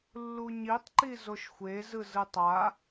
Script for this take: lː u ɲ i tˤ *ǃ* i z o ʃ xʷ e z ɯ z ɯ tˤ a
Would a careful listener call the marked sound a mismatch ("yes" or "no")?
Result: no